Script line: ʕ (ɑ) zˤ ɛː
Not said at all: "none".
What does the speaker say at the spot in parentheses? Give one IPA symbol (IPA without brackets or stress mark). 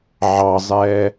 ɑ